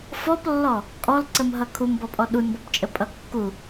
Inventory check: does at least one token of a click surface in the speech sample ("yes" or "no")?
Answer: yes